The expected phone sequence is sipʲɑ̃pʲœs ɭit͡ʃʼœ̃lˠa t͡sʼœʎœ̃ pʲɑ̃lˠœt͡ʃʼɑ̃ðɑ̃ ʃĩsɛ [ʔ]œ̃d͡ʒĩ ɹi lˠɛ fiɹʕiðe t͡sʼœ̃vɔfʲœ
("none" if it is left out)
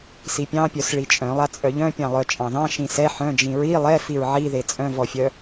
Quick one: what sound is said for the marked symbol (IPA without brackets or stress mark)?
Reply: ħ